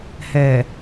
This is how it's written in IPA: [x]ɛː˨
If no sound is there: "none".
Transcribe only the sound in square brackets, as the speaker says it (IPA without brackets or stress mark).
h